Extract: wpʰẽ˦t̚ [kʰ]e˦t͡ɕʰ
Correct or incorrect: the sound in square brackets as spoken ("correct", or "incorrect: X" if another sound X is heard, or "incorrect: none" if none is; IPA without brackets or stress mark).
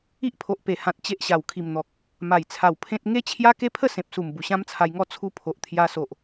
incorrect: ŋ